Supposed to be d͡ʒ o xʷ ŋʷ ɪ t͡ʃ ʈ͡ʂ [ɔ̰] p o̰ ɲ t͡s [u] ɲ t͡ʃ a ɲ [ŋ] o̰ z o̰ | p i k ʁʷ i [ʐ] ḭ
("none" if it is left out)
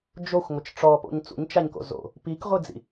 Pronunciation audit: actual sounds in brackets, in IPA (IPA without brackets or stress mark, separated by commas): ɔ, ṵ, k, d͡z